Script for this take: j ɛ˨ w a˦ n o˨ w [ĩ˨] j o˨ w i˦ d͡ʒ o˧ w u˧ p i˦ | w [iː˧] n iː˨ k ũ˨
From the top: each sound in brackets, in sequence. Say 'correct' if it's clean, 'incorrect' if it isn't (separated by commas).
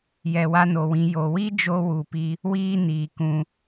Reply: incorrect, correct